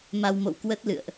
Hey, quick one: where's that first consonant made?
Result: lips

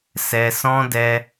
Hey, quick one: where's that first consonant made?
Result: tongue tip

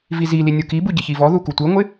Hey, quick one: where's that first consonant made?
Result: lips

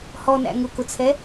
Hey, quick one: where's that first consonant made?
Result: throat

